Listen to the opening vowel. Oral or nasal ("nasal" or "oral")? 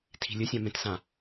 oral